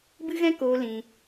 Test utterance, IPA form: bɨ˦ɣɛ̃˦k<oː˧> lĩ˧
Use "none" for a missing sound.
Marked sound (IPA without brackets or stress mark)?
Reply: oː˧